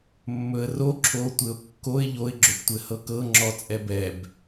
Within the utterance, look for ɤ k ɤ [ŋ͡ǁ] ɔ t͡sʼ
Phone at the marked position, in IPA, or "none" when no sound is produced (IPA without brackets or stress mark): ŋ͡ǁ